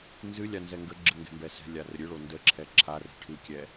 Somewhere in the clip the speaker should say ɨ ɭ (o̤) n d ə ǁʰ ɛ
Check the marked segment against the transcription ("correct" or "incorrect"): incorrect